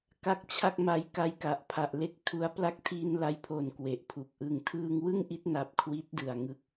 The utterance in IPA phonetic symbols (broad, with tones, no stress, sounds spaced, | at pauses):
k a˦˥ k̚ t͡ɕʰ a˥˩ k̚ m a˦˥ j k a˦˥ j k a˨˩ ʔ pʰ a˨˩ ʔ l e˦˥ k̚ tʰ u˦˥ a̯ p l a˦˥ k̚ tʰ iː˧ n l a˧ j pʰ o˨˩ n k w e˨˩ ʔ pʰ u˨˩ k̚ ʔ ɯ˨˩ ŋ tʰ ɯː˧ ŋ w ɯ˥˩ ŋ ʔ i˦˥ t̚ n a˨˩ p̚ kʰ w i˦˥ t̚ d ɯ˨˩ a̯ ŋ ɯ˦˥ k̚